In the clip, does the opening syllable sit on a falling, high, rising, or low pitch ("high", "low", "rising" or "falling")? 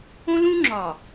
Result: high